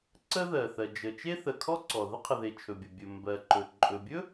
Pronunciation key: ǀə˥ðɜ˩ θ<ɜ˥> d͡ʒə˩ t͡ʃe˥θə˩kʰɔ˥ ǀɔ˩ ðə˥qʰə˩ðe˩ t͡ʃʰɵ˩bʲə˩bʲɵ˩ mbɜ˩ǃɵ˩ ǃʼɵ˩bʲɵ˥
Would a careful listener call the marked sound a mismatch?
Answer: yes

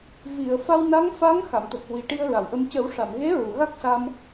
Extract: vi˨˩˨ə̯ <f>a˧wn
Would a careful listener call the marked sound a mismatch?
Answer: no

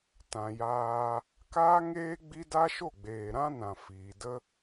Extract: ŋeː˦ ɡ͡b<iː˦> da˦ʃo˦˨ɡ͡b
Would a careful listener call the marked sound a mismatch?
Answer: yes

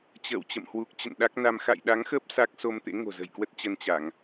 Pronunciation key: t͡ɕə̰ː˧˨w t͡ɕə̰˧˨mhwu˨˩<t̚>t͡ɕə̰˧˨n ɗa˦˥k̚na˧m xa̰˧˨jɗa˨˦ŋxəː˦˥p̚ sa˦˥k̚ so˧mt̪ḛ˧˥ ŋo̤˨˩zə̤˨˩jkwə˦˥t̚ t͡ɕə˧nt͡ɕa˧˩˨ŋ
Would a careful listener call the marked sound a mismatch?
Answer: yes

